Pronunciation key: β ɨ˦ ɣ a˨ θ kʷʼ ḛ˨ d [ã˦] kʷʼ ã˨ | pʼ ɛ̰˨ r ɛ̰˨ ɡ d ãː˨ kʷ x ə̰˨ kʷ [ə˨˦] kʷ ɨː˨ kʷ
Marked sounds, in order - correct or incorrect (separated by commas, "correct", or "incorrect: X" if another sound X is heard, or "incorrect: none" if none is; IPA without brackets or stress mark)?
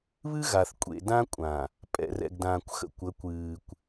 correct, correct